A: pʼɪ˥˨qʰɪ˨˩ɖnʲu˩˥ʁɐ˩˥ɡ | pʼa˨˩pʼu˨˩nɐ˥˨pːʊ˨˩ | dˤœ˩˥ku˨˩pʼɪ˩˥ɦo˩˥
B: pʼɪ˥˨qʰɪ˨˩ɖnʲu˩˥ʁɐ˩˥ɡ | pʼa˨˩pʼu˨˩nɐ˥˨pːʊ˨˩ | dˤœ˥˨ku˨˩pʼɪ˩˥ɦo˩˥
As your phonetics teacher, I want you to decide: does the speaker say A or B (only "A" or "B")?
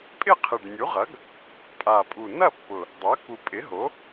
A